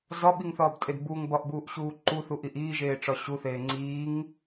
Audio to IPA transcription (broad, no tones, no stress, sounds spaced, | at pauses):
z ɒ ɓ i ŋ θ ɒː b tʼ e d b u ŋ b ɒ ʔ b uː ʔ ɕ uː ǃ u θ u ʔ i ʔ iː ʒ eː ʈ͡ʂ ɒ ɕ u θ eː ŋ͡ǀ iː ŋ